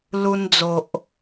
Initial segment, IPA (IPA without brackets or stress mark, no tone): l